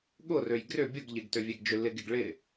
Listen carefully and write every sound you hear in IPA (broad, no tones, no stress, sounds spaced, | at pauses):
ɠ ʊ r ø j ɡ r ʏ bʲ ʊ ɡ ʎ ɪ ɡ t ø vʲ e ɡ d͡ʒ ʏ l ɪ ɡ ɪ ɡ ɭ ɪ